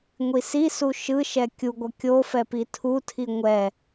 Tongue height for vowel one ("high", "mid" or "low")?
high